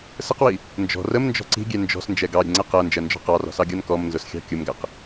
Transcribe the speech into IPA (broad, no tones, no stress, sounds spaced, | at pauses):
s ə q w i | n d͡ʒ ɔ̤ r ə m n d͡ʒ ɔ̤ ǀ i̤ ɡʲ ɛ n d͡ʒ ɔ̤ s n d͡ʒ ɛ ɡ ɑ ɾʲ ə̤ ŋ͡ǀ ɛ q ɜ n d͡ʒ ɜ n d͡ʒ ɔ̤ q ɑ r ɔ̤ s ɑ ɡʲ ɒ n k ɔ m n z ʊ s xʲ ɑ̤ kʲ ʊ m ɡ æ q